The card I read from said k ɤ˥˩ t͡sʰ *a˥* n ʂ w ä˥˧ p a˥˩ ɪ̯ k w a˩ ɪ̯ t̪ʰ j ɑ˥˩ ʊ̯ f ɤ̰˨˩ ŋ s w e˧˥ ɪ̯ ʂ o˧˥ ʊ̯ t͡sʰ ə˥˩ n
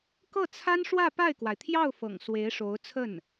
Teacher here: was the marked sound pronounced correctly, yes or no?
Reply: yes